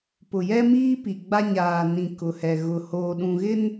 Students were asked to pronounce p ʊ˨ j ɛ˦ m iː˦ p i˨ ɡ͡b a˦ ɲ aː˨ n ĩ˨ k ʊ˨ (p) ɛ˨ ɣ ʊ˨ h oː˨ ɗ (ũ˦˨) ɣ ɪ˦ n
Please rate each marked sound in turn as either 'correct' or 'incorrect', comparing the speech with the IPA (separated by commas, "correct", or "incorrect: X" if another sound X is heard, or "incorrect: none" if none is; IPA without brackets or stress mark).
incorrect: h, incorrect: ũ˨